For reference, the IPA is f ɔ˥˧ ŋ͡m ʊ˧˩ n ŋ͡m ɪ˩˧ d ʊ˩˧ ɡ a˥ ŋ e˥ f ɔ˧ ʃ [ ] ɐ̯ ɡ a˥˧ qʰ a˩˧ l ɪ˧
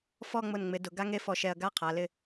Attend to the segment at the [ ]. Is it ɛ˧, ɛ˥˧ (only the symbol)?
ɛ˧